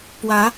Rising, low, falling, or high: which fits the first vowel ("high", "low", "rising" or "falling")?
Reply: rising